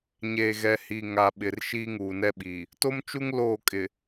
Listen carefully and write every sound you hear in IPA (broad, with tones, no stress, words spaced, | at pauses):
ɲe˨ɣɛ˨hi˨ ŋa˨ɓɪ˨r ʃiː˦ŋuː˨nɛ˦ɓiː˨ | to˦mt͡ʃu˦ŋ loː˦˨kʼɪ˨